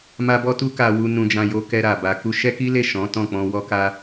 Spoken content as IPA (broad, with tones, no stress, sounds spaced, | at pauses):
m a˦ b ɔ˦ t u˦ k a˧ w u˧ n ũ˧ d͡ʒ ã˧ j o˧ k ɛ˧ ɾ a˨ b a˨ k u˧ ʃ ɛ˦ k i˦ l e˦˨ ʃ ɔ̃˨˦ t ɔ̃˦˨ k͡p ɔ̃˧ w ɔ˧ k a˧